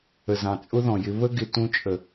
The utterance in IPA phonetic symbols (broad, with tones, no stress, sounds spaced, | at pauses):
ə˨ z ɑ̃˨ t͡sʼ ʊ˦ ð ɔ̃˨ j ɪ˧ β ə˦ ɡ ɪ˨ t ũ˦ t͡ʃʼ ə˨